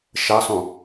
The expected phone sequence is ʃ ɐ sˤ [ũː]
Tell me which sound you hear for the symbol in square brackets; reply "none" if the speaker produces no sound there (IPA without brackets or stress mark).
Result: ũ